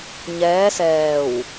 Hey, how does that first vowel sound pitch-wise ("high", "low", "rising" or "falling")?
rising